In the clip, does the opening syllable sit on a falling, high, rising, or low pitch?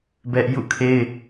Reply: high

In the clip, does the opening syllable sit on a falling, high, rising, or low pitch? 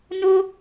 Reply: high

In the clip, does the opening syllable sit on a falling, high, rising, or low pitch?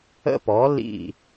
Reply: high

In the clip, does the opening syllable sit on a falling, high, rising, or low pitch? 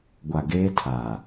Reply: low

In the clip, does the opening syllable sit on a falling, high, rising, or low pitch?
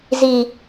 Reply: low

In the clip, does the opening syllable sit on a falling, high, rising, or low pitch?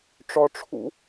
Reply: low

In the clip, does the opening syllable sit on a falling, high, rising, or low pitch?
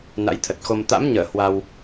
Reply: rising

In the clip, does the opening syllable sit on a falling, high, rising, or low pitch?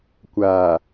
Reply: low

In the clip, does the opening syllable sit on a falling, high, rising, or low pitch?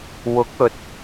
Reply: rising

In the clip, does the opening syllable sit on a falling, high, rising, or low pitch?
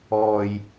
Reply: low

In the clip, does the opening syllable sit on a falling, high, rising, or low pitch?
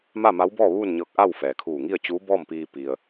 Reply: falling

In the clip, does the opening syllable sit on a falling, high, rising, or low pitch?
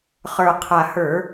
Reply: low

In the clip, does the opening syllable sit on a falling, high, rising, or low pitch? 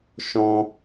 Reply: high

